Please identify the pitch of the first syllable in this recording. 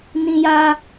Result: high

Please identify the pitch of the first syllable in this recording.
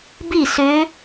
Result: falling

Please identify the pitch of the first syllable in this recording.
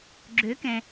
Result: rising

